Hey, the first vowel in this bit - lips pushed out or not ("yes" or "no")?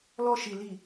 yes